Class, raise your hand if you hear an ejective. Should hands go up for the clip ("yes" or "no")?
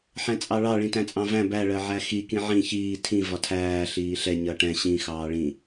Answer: yes